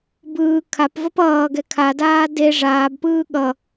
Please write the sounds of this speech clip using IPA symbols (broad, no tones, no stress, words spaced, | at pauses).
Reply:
bɯː kʰapvʌp ʌːɡɛ kʰadaː de ʐaːbpɯː ɠʌ